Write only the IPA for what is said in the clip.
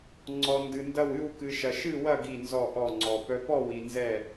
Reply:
ŋ͡ǀ ɔ˧ n d ɨ˧ n d ɐ˥˧ w ɨ˥˧ w k ɨ˧ ʃ ɐ˧ ʃ ɨ˥˧ w ɐ˥˧ ɡ i˥˧ n z ɔ˥˧ ʔ ɔ˥˧ ŋ͡ǀ ɔ˧ p œ˧ p ɔ˥˧ w i˧ n z ɛ˥˧

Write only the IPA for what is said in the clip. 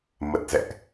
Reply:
m ə˨˩ t̚ z ɛ̰˧˨ ʔ

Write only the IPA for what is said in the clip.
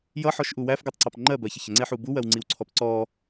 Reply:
j ʌ ħ ɔ ʃ ʔ u w æ f ɡ ɜ tˤ ǀ ɑ p ŋ͡ǃ ɜ b ɜ ç ə ç ə ŋ͡ǀ ɛ ħ u b u w ɜ w ŋ͡ǀ i w ǀʰ ɔ p ǀ ɔ

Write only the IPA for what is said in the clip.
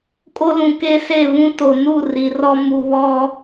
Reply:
kʼ o˦ l ũ˨ k e˦ s e˦˨ β ũ˦ t o˨ n u˦˨ r i˨ r ɔ˦ m u˨ β ɔ˦

